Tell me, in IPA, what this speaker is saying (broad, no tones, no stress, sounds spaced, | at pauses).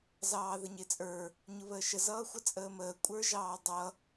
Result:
z ɑː ð ə ɲ ɪ t͡sʼ ə˞ | ɲ ʊ β əː ʃ ə z ʌː xʷ ə t͡sʼ əː m əː kʷʼ ə˞ ʒ ɑː dˤ ʌ